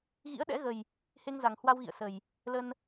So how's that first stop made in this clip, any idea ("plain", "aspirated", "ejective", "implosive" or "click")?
implosive